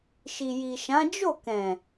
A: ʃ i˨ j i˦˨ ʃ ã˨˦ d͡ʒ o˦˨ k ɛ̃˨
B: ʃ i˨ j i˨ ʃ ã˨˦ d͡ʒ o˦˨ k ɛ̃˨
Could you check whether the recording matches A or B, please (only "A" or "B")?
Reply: B